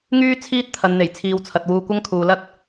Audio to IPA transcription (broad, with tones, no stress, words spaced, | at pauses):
ŋyː˥ t͡sʰiː˥t̚ t̪ʰɐ˨˧nn̪e˨˩jt͡sʰiː˨wt͡sʰɐ˨t̚ wuː˧kʷɐ˥ŋkʰuː˨lɐ˥t̚